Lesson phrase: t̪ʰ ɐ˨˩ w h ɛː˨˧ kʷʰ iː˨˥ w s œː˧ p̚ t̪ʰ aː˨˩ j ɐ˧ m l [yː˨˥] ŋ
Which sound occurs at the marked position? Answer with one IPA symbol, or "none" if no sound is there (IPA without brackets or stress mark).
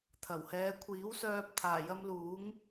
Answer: uː˨˥